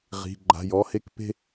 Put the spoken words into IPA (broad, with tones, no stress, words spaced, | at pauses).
ʁi̤˩˧˩ ɡ͡ǃa̤˩˧˩ jɔ˩˧˩he˥˧kpe̤˥˧